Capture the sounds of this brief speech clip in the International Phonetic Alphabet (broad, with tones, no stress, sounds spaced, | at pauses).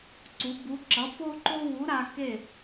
ǀ u˨˥ b u˨˥ ǁ ʌ˨˥ p o˥ ǃ o˥ w u˨˥ ɾ a˧ k e˥˨